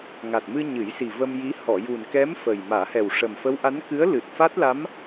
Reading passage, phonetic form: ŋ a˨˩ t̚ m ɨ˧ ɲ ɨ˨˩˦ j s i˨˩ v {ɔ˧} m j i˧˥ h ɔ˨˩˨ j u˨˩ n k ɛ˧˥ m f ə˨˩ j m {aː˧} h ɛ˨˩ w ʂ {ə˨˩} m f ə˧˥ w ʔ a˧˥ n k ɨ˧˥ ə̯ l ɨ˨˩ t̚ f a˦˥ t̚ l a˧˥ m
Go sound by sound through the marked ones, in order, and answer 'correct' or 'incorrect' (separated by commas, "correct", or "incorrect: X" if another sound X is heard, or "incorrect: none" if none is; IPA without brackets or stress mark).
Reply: incorrect: ə˧, incorrect: aː˨˩˦, correct